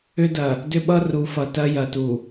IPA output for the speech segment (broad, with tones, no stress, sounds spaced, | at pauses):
ʏ˦ d ɐ˨ | d ʏ˦ ɓ ʌ˦ r u˨ f ʌ˨ t ɐ˦ j ɐ˨ t u˨